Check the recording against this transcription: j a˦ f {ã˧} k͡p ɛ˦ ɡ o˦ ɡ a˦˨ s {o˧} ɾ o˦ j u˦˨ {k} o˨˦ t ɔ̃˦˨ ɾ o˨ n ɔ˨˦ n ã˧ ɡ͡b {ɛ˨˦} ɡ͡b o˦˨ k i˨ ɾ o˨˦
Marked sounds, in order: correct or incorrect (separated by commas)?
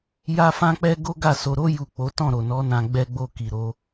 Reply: incorrect, correct, incorrect, incorrect